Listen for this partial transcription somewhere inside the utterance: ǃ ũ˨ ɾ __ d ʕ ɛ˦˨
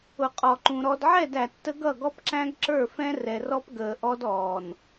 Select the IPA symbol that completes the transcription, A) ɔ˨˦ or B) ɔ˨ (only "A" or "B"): B